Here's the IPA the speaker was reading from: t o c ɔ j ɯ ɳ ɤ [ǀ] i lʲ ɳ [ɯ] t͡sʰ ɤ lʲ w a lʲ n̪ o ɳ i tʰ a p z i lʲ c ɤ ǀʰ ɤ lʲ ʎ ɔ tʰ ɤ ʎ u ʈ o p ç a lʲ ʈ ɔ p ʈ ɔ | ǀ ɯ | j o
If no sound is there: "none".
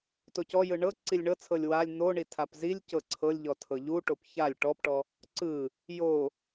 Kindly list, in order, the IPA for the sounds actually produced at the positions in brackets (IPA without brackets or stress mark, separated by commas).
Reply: ǀ, ɤ